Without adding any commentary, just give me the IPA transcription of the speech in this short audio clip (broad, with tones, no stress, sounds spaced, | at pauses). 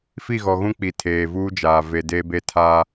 f i˦˨ ɣ ɔ˨ ɣ ũ˦ k͡p i˨ tʰ eː˨ v uː˦ d͡ʒ aː˨ v e˨ d eː˦ b eː˦ tʰ aː˦